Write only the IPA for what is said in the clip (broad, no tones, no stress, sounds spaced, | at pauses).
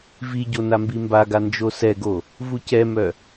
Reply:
v i ɟ o n a m b i m b a ɡ a n d͡ʒ o s ɛ ɡ o | v u c ɛ m œ